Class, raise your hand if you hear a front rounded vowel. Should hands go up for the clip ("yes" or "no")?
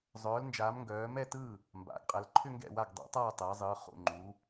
yes